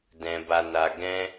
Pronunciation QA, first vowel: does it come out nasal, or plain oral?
nasal